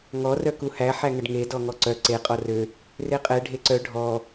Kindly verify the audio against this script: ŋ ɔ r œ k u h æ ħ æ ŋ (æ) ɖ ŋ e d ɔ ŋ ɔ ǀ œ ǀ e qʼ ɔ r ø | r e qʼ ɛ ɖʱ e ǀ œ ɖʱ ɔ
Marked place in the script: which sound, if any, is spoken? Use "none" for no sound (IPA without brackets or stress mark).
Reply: ə